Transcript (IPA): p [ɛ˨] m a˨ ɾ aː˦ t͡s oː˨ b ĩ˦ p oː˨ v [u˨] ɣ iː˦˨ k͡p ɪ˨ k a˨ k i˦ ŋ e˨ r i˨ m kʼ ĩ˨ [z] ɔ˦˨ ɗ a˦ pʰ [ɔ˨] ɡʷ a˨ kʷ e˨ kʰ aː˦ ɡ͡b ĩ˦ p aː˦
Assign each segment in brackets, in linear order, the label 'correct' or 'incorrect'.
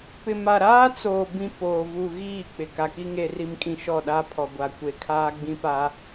incorrect: ɪ˨, correct, incorrect: ʃ, correct

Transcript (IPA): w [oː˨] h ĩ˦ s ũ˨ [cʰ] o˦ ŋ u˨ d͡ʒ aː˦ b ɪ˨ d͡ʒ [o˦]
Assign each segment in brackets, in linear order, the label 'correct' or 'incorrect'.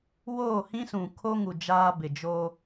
incorrect: oː˦˨, incorrect: kʰ, correct

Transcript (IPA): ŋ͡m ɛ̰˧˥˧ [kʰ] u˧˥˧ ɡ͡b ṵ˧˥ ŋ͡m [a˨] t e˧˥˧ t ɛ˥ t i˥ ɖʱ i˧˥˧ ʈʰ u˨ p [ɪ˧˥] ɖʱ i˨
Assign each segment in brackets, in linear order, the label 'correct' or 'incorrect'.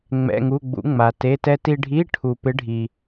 incorrect: ŋ, correct, correct

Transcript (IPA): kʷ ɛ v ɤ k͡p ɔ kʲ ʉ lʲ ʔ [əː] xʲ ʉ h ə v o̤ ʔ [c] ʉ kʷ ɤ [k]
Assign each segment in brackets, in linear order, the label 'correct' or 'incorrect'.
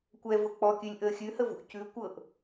correct, correct, incorrect: ʔ

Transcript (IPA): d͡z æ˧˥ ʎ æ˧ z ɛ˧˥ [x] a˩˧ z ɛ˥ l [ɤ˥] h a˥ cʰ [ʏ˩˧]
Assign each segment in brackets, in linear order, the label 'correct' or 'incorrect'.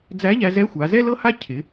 incorrect: xʷ, correct, incorrect: ɪ˩˧

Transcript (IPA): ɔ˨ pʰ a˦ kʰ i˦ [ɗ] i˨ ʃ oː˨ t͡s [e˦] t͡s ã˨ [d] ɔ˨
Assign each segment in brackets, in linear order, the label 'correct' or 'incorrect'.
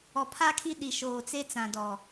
correct, correct, correct

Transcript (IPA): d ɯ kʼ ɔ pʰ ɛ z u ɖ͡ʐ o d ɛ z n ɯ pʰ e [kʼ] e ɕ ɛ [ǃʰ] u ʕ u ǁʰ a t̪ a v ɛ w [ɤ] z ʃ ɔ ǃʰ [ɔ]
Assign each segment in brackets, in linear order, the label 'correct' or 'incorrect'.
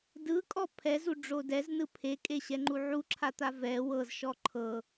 correct, incorrect: ŋ͡ǃ, correct, incorrect: ɤ

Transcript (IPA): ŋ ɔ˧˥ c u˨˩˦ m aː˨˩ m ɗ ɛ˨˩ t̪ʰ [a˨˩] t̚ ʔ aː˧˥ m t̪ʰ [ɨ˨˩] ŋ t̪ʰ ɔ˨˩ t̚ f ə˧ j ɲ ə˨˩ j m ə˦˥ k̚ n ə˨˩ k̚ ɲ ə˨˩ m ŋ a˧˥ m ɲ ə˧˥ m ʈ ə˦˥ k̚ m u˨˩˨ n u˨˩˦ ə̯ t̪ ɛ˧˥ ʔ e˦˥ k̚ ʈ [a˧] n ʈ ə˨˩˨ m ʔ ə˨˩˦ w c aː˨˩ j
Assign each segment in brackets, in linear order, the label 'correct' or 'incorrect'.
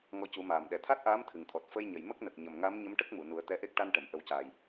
incorrect: a˦˥, correct, correct

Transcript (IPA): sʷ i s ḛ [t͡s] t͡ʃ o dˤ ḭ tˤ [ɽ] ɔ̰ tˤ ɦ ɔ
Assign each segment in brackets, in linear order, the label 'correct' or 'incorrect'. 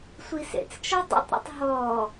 correct, incorrect: ɾ

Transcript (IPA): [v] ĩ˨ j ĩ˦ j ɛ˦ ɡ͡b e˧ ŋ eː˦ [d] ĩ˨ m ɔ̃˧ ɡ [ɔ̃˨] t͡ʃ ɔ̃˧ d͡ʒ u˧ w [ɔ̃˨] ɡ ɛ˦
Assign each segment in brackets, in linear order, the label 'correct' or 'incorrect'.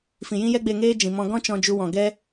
incorrect: f, incorrect: d͡ʒ, incorrect: ɔ̃˦, correct

